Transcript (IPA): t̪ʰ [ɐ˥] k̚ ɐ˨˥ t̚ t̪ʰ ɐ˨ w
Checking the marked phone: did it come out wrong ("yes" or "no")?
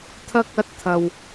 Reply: no